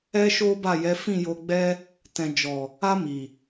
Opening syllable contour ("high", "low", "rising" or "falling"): high